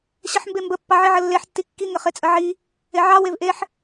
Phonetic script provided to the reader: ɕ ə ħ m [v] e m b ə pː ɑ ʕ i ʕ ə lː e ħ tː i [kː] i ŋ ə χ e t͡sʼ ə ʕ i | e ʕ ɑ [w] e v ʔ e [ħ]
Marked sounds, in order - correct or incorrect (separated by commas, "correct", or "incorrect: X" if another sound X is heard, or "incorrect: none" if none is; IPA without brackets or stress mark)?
incorrect: b, correct, correct, correct